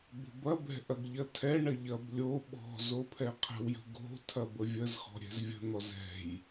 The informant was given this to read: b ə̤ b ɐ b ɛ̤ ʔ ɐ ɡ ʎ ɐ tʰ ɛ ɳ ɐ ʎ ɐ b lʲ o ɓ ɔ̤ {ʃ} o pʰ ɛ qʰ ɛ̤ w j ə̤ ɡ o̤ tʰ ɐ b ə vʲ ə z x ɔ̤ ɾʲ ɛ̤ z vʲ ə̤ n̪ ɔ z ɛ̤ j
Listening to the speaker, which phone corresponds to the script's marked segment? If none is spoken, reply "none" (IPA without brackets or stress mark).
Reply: z